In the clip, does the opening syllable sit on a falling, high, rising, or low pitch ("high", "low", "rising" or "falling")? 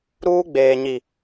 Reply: high